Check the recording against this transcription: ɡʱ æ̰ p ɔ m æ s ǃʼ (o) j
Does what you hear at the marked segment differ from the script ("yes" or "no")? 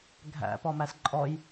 yes